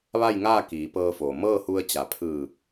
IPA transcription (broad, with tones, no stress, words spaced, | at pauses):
ʋa˥˨jŋaː˥˨ kiː˩˧pɤː˧foː˩ mɤː˥˨hu˧ə̯t͡ɕa˩˧ pʰɯː˧˩